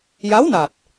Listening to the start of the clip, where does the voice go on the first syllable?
rising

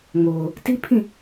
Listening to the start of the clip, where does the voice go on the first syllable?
low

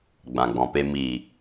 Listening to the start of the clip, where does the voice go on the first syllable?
low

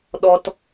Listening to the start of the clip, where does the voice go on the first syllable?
high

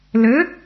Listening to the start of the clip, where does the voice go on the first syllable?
rising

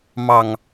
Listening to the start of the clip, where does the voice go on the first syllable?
low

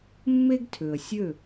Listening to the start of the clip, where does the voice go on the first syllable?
high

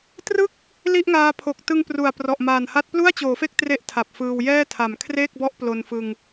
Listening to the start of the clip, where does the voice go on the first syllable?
falling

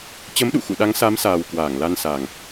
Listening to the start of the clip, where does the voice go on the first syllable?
rising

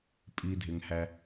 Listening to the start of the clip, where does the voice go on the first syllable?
low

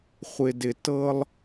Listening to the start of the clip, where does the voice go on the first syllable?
low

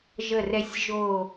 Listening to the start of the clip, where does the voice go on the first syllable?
low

